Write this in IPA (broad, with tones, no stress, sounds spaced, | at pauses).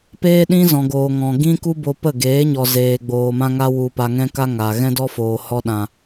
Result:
p eː˦ ɗ ĩ˦ z ɔ̃˨ ɡ oː˨ ŋ ɔ̃˨ ɡ ĩ˦ k u˦ b o˧ p ə˦˨ ɡ eː˨˦ ɲ ɔ˨ z eː˨ ɡ͡b oː˨ m ã˧ ŋ a˧ w u˨ p a˨ ŋ ɛ̃˦ k a˦ ŋ aː˨ ɣ ɛ̃˦ d ɔ˦ f oː˨ h ɔ˧ ɗ ã˨